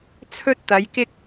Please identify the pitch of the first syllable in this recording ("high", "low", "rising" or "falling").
high